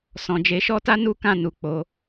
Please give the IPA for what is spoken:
sɔ̃˨d͡ʒe˨˦ʃɔ˦ta˦ nu˦kã˦˨nu˨ k͡po˨˦

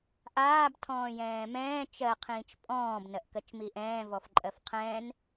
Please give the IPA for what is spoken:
ʔaːb tʰɔ̃ːjɛ̃ːmɛ̃ː t͡ʃɜ qʰĩːt͡ʃpʼɔ̃ːb nɜʔkɜt͡ʃmiʔɛ̃ː vɔfǃʼɜfqʰɛ̃ːn

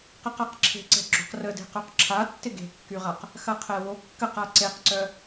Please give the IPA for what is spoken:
qəqaqǁʰe̤ǀɛ̤ ɡ͡ǁo̤qrəde̤qœq ǁʰa tːɪɡe̤kːyʁaq | xɐqʰɛwo kːəqa ǀeqǀœ

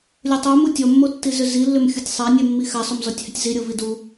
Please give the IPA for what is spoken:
lʲutˤo mutʲɔmːo tːizʏzilːʏm xʲutʲsˤanʲɛmːi xasˤomzɔtʲhʏtʲ ziɾʲo vidu

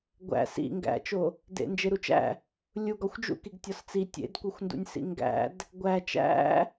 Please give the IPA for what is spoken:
ɡʷæ̰ sḭ ŋɡæ̰t͡ʃo | dḛnd͡ʒeɾut͡ʃæ̰ | lʲuɡ ɒxʷd͡ʒṵkiɡ tʲɒst͡si tʲḛdkʷexʷndṵnʲsḭ ŋɡæ̰d | ɡʷæ t͡ʃæ̰

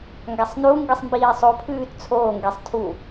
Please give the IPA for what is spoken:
ŋɡasˤnuŋɡisˤ mbiːsˤopʰʉːt t͡sʰoːŋɡesˤ tʰu

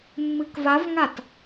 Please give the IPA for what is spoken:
mːɨkvavŋat

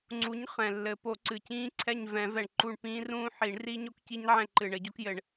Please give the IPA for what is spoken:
ŋ͡ǀu˨˥ɲ χɛ̃˨˩lːɘ˨˩˦ po˨˩˦ǀɨ˨˩cĩː˦˥ǀʰɛ˦˨ɲ vɛ̃˨˩˦vɛ˨˩ɳ ǃu˦˨ɳpĩː˦˥rũː˦˥ ħi˨˩˦ɳ ri˦˥ɲo˦˥kci˦˥ɲʕɛ̃˦˨ ǃɨ˨˩ɳɘ˨˩˦ɟo˨˥kjɘ˨˩˦ɳ

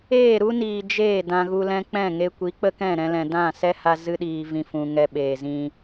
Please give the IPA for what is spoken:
eː˦˨ɾu˦niː˨ d͡ʒeː˦˨ dã˧ɣu˧lɛ̃˦ k͡pɛ̃˦˨ŋe˧kʷi˨˦ k͡pə˦kɛ̃˦˨ɾɛ̃˧lɛ̃˨ dã˦˨sɛ˦ ha˧ zɨ˦ɗiː˧vĩ˧ fũ˨ŋɛ˧ ɓeː˨zĩ˧

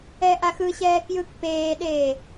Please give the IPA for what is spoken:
ɛʔaxɯɕɛː kjɯk peːɗeː

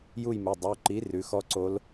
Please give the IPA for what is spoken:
ju˥˨jmu˩˧˩ dˤu˩˧˩ǃi˨˥ rʉ˨˥xɔ˦˥ǀo˦˥l

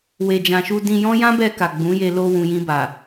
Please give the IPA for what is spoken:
we˨d͡ʒã˨ʃu˧ dĩ˧jɔ̃˦ jã˦bɛ˧ ka˨ɡ͡bũ˨˦je˧ lo˧wũ˨ jĩ˧ ba˨

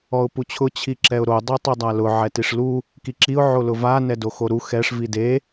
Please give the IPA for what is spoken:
ɔʊ̯put͡ɕʰʊ t͡ɕʰiǁɛʊ̯ɾo dˤetˤidˤalʊ ʕɛtiʂlu | kiǁiʊ̯ ʕolʊva nɛdoxoɾu xɛʂ vide

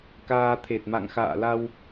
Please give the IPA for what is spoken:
kaː˧t̪ʰe˨˩t̚ma̰˧˨ŋ xa̰ː˧˨la˧w

